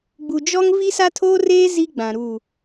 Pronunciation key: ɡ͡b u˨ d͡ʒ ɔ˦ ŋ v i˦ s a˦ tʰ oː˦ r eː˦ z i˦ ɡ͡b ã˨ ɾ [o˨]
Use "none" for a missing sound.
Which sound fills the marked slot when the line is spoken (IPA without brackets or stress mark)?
u˨